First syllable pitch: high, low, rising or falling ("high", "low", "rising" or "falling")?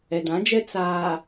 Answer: low